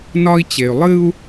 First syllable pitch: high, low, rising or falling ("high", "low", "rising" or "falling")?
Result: high